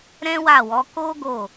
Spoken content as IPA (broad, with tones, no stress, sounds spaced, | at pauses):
ɾ ɛ̃˦ w a˦˨ w ɔ˨˦ k o˦ ɡ o˦˨